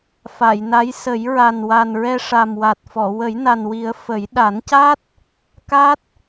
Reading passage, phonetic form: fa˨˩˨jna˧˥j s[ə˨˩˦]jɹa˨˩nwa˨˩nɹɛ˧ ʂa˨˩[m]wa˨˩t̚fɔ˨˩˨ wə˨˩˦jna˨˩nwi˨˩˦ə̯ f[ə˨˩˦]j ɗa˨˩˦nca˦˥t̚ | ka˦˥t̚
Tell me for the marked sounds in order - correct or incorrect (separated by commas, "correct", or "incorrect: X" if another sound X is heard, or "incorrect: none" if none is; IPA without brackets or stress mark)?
correct, correct, correct